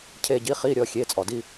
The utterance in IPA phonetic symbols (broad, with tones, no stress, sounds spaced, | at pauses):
cʰ e˦˨ ɟ i˧˥˧ χ i˧˥˧ ɾʲ ɔ˩˧˩ xʲ e˩˧˩ t͡sʼ ɔ˩ d i˦˨